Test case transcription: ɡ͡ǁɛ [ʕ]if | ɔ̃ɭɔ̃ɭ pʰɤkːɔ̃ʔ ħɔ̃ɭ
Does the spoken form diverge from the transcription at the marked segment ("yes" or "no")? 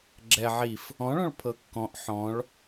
no